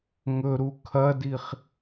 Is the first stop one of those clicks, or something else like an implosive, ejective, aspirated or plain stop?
aspirated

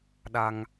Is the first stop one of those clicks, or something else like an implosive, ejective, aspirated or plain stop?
implosive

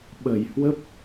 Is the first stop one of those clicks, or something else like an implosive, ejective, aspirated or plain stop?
implosive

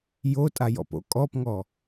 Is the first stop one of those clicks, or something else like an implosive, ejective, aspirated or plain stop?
ejective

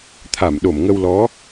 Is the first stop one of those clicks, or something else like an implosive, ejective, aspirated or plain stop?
aspirated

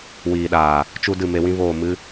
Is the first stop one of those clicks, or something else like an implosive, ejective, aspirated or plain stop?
implosive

